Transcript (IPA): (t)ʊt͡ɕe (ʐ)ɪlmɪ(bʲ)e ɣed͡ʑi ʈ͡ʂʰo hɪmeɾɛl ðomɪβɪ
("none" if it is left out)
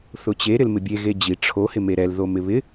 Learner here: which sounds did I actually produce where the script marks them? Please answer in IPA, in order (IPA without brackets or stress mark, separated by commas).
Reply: θ, ɾ, bʲ